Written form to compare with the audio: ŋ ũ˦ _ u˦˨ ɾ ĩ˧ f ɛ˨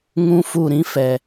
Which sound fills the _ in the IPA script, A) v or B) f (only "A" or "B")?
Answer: B